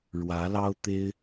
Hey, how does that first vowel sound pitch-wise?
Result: rising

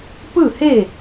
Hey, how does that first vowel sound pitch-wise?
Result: falling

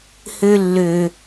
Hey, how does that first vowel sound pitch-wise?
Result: high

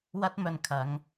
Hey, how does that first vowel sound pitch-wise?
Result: high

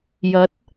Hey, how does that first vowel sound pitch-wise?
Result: rising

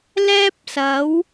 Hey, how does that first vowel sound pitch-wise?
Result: high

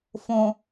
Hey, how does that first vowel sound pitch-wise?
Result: low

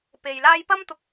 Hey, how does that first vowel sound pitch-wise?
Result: low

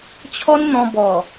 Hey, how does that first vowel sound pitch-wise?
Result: high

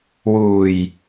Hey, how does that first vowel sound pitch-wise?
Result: low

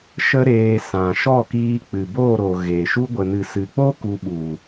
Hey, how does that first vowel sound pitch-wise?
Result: high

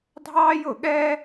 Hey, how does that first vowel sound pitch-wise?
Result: high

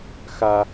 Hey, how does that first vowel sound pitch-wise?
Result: high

